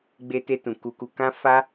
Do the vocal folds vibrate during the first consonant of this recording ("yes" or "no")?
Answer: yes